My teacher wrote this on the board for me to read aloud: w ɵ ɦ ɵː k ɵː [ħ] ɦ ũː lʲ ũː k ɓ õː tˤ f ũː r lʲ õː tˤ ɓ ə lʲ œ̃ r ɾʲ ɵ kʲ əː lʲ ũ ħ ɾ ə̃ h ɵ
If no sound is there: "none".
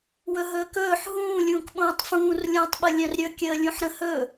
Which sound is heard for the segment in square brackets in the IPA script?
ħ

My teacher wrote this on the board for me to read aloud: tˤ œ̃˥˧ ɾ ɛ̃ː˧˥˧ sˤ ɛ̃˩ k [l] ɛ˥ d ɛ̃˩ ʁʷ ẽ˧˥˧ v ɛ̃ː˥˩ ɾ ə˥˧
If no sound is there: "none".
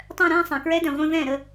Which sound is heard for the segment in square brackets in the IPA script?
ɹ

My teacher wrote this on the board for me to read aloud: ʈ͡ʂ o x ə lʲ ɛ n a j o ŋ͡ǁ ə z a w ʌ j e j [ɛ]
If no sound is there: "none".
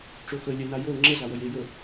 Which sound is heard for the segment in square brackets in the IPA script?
ə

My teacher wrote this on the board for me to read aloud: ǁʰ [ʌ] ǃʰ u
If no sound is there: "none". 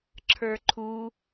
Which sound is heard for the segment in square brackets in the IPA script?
ə˞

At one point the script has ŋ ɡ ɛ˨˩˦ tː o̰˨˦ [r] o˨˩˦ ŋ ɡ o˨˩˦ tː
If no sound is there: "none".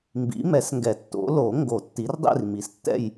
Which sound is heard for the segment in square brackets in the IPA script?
l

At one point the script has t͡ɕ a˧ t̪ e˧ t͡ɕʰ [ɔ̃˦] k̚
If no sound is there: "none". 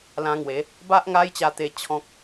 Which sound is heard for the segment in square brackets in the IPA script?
ɔ̃˦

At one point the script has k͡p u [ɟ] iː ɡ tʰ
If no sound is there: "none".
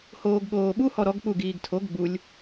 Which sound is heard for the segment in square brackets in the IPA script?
ɡ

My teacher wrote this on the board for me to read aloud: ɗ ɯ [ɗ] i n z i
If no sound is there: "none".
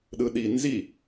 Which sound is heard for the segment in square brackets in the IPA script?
ɗ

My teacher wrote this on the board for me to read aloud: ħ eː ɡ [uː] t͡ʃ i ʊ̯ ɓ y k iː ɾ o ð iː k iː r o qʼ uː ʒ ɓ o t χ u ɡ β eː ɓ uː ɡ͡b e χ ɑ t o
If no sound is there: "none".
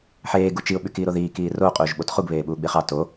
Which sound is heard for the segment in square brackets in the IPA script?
u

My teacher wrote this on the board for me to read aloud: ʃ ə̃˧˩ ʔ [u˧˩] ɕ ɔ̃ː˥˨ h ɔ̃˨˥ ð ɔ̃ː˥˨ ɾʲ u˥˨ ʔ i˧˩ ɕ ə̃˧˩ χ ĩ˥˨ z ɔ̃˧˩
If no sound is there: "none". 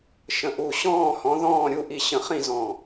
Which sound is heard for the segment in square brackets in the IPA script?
u˧˩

